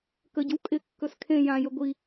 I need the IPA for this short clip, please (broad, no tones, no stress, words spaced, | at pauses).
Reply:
kəɟə̤w kʼɪkːɵs kʰẽ jãjɵ ɡʷi